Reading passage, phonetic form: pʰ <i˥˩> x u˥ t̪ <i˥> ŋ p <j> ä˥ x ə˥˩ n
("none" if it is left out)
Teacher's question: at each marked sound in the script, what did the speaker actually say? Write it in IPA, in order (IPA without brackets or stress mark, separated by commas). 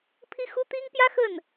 i˥, i˥, j